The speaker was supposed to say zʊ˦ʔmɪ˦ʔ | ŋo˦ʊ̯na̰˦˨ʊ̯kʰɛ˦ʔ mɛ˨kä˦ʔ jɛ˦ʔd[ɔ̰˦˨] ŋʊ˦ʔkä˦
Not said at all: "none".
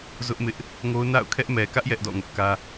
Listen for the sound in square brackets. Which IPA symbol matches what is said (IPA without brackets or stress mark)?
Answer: ɔ̰˦˨